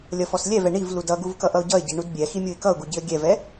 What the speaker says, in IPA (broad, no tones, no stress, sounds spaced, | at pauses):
lʲ ʌ f ɔ s lʲ ɛ v ɛ ɳ i v l u d ʌ ɡ u v k ʌ ʔ ʌ ʊ̯ ɟ ʌ ɪ̯ ɟ i ɳ u d bʲ ɛ x i mʲ u ɪ̯ k ʌ ʊ̯ ɡ u ɟ i ə̯ ɡʲ ɛ v ɛ